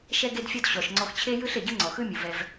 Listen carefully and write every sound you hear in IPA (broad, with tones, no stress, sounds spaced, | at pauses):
ʃ ɛ˧ ɡ e˧ d fʲ ɔ˧ d ɕ ɔ˨ ʃ ŋ͡ǀ ɔ˧ x t͡ɕʰ e˦ j ɯ˦ ɬ e˨ ɟ ɯ˦ ŋ͡ǀ ɔ˨ x ɯ˦ mʲ u˨ v ɛ˧ v